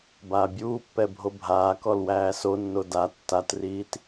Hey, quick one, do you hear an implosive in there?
no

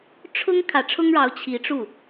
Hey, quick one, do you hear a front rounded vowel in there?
no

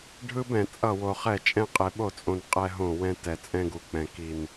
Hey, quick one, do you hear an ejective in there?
yes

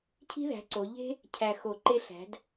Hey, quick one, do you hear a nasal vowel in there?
no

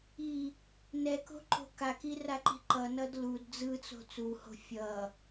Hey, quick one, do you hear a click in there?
yes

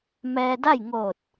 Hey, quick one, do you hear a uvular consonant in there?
no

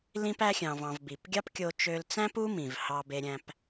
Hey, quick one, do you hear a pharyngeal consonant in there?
no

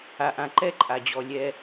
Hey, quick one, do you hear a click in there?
yes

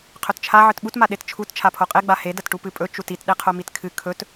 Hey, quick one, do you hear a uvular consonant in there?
yes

